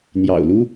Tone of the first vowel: low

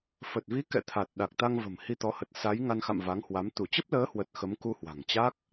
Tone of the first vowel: low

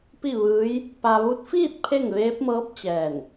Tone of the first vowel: falling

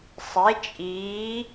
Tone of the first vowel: rising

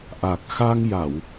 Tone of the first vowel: low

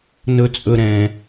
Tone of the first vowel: low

